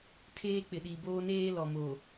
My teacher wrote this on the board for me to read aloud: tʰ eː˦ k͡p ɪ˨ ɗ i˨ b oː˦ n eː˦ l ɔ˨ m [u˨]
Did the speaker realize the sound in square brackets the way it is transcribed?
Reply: no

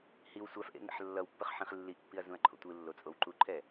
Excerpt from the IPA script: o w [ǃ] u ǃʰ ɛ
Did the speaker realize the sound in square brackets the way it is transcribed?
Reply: yes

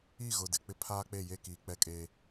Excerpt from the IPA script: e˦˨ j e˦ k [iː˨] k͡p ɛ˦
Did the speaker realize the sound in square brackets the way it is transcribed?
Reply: yes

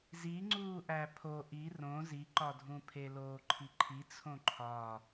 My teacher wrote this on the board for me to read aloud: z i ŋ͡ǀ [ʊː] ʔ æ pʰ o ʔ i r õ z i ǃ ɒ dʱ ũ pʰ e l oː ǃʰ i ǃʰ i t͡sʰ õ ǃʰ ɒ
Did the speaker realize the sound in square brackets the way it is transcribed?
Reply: no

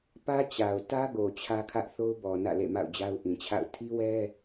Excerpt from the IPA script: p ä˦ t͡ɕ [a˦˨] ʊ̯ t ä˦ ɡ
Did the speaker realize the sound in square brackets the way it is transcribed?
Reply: no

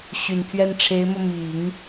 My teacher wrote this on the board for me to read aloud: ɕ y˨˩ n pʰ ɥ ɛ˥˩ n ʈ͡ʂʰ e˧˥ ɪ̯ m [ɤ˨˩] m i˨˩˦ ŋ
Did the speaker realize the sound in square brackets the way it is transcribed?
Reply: no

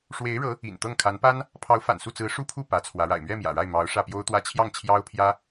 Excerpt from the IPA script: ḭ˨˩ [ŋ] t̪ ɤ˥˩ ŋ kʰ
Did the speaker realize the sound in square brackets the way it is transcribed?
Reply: no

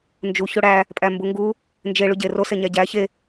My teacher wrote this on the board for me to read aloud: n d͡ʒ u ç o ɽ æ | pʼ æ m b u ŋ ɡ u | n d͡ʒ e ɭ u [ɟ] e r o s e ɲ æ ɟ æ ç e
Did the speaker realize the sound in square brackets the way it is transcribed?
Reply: yes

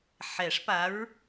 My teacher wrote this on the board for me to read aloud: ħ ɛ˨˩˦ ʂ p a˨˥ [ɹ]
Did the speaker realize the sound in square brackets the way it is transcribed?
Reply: yes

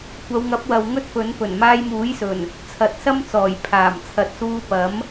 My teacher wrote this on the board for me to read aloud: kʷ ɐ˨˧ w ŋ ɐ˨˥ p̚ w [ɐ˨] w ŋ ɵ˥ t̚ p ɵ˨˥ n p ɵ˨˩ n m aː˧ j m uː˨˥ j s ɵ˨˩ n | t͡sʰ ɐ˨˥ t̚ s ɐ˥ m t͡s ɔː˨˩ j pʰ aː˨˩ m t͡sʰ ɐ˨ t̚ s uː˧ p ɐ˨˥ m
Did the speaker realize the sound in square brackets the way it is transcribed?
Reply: yes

